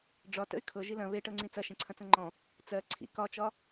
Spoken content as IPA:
ɖ͡ʐɒtə̰y̯ kʰɤ ʒilɐ̃ βeʈɤ ŋ͡ǀĩt͡sɐ ʃẽǀʰɐ̃t͡sɐ̃ŋ͡ǃɔ̃ | t͡sɜ ǀʰḭ kɒt͡ʃɒ

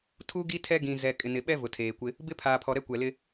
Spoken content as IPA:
tʰu˦ ɡi˦tʰɛ˦ɡĩ˨ zɛ˨ kʼɪ˨nɪ˨ɓɛ˦ vʊ˨tʰeː˨kʷɪ˦ | bɪ˦ pʰaː˨pʰɔ˨ɾɛ˦ kʷɛ˨lɪ˦

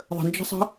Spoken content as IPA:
ðˤə̤nd͡ʒə̤sˤə̤

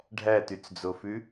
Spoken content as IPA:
ɖʱætyt͡sd͡zofʉ

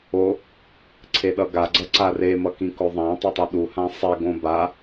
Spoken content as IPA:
o | ǀʰeɗʌɡa ɡ͡ǀʌǀare mʌkĩkoðˤã tˤetˤuɗu hãsˤe ɡõba

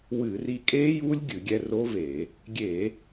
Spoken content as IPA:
wɨ˧˩˧ri˧ kʼe˦˥ju˦˥lʲ ɡʲɨ˧˩˧ɡʲɛ˧ro˦˥ve˧˩˧ | ɡʲe˧˩˧

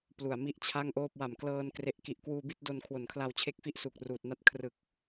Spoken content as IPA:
plu˨˩a̯mi˥˩ʔt͡ɕʰa˥˩ŋʔoː˥˩p̚ wa˨˩mklɤː˧n kre˨˩ʔki˨˩ʔkwuː˧ bi˥˩t̚do˧nkʰwo˨˩nkʰla˧w t͡ɕʰe˦˥k̚fi˦˥ʔsu˨˩k̚ ruː˨˩t̚na˥˩t̚ kʰrɯ˨˩k̚

